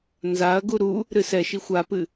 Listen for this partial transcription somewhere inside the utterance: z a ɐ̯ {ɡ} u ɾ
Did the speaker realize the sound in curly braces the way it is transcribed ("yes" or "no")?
yes